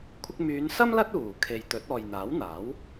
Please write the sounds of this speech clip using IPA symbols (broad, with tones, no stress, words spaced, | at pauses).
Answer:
kʷʰɪ˧k̚myː˨˧nsɐ˥m lɐ˥t̚uː˨˩kʰe˨j t̪ɵ˨˥t̚ɔː˨j n̪aː˨˥wn̪aː˨˥w